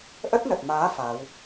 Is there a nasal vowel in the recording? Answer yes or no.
no